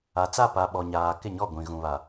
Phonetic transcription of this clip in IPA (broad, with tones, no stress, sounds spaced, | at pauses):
a˨ t͡s a˦˨ p a˨ ɓ ɔ˨ ɲ aː˨ k ɪ˦˨ ɲ ɔ˦˨ ɡʷ ĩ˨ ɣ ũ˨ β a˨